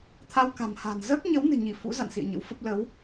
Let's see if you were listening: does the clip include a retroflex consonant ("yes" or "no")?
no